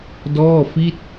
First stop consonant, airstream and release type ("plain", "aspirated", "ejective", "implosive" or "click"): plain